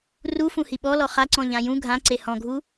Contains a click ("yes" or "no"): yes